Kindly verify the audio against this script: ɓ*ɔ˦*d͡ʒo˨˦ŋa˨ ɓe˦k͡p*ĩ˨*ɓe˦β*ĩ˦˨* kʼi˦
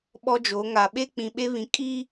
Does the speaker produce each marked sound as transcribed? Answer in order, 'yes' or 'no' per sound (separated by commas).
yes, yes, no